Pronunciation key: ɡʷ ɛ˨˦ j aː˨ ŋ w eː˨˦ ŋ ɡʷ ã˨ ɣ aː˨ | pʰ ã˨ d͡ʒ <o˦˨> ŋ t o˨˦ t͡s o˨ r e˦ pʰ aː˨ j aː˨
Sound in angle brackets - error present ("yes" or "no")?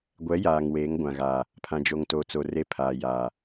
yes